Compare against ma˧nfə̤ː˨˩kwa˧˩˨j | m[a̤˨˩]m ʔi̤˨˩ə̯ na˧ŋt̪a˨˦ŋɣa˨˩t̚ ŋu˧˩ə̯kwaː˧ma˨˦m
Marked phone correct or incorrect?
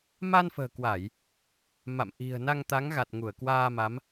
incorrect